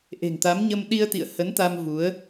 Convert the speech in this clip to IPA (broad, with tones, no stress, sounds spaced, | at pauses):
ʔ e̤˨˩ ŋ t̪ a˨˦ m ɲ ə˧ m ɗ i˧ ə̯ t̪ ḭ˧˨ ə̯ h ə˨˦ n t̪ a˧ m v u˨˦ ə̯